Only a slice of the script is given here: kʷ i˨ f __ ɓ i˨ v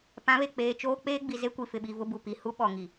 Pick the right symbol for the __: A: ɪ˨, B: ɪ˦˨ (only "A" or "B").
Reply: A